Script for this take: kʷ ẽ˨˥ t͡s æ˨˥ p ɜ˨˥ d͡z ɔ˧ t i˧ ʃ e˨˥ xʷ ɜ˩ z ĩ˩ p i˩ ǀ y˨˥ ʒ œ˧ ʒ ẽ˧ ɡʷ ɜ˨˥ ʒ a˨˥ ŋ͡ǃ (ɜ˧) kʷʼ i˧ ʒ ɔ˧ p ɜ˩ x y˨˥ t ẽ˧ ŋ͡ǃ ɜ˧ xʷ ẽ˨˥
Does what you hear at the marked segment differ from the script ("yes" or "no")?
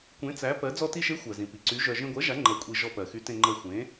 yes